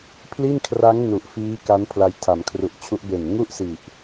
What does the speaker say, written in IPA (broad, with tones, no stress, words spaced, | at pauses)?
pʰli˥˩nkʰra˦˥ŋ nu˨˩ʔ fiː˦˥ka˦˥n pʰla˧jtʰa˩˦mkʰru˨˩ʔt͡ɕʰu˦˥ʔ be˨˩nŋu˥˩ʔsi˨˩ʔ